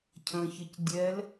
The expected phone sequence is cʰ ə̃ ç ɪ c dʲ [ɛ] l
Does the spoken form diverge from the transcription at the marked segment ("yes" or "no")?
no